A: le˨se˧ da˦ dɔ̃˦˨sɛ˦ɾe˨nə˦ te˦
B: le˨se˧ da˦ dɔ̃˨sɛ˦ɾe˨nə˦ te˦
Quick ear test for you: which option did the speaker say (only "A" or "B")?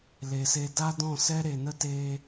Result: A